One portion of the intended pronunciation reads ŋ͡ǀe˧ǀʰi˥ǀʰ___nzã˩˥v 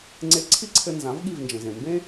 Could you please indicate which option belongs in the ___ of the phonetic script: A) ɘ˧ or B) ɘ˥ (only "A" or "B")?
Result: A